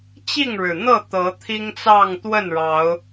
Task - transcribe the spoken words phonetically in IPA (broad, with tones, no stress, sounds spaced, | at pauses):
t͡ɕ i˥˨ ŋ ɻ ɻ̩˩ n̪ ɤ˥˨ t̪ ɤ˨˦ t̪ʰ i˦ ŋ t͡s ɑ˥˨ ŋ t̪ w ə˥˨ n ɻ ɑ˨˦ ʊ̯